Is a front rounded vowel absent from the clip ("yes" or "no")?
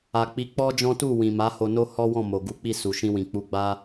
yes